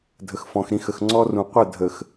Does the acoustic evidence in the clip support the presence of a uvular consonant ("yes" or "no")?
yes